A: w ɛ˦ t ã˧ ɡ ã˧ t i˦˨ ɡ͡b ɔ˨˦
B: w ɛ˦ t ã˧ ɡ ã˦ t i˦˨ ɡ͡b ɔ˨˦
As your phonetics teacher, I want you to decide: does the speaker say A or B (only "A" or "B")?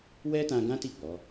B